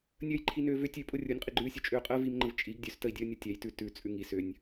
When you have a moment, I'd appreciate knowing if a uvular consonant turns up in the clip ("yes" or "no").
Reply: yes